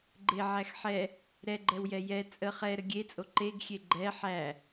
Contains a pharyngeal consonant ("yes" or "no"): yes